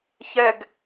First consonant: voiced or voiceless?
voiceless